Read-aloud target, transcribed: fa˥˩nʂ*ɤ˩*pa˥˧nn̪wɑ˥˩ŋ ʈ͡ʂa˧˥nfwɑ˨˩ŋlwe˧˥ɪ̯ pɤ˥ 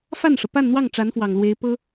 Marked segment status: correct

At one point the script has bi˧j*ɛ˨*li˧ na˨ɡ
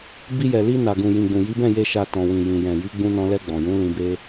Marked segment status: correct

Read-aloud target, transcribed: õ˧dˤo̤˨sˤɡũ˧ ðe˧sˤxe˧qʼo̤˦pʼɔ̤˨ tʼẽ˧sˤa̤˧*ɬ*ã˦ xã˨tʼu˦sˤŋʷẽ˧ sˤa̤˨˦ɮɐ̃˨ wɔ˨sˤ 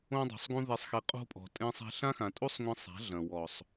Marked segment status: correct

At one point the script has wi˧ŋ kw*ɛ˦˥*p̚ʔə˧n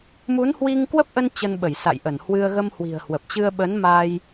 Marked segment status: incorrect: ə˦˥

